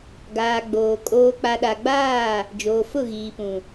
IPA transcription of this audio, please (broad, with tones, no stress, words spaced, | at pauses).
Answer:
ɡaː˨ɡ͡boː˨ kʼoː˨k͡pa˨ ɗa˨ɡ͡baː˦˨ | d͡ʒoː˨fʊ˦˨ɣiː˨pũ˨